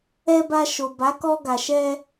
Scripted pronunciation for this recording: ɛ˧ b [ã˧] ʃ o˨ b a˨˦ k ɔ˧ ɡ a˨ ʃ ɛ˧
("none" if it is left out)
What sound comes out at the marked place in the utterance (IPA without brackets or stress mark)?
a˧